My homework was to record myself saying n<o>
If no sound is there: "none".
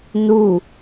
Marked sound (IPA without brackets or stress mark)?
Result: u